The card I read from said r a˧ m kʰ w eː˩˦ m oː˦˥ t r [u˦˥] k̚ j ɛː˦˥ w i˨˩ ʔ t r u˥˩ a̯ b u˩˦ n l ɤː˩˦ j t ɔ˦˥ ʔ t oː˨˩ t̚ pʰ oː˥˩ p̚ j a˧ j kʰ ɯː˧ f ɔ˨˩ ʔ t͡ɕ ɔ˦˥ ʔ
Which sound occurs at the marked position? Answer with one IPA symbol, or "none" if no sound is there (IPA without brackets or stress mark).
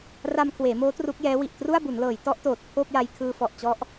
u˦˥